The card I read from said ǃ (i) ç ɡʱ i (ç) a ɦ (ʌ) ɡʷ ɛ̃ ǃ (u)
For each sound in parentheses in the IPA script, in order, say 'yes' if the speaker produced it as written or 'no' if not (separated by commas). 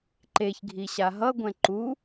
no, no, yes, yes